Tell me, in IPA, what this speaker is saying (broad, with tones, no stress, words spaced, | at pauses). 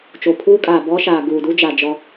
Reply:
t͡ʃo˨pʰuː˦kʼaː˨bɔ˦ ʃaː˨ɡuː˨du˦ d͡ʒa˨ d͡ʒɔ˦